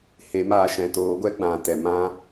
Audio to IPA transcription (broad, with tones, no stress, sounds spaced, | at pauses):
h e˨˦ m aː˧ ʃ ɛ̃˨ t oː˨˦ ɡʷ ɛ˦ ɡ͡b ã˨ t ɛ˨ m ã˦